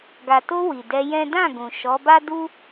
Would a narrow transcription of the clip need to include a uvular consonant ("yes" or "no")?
no